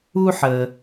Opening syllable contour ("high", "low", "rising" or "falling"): high